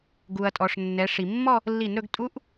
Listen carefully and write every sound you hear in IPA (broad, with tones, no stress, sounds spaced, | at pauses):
ɡ u˩ ɐ̯ tʼ ɔ˩ ʂ nː ɛ˩˧ ʂ i˩ mː ɔ˥˧ | lː i˧˩˧ n ɾ ɵ˩˧ ɡ tʼ u˧˥ ʔ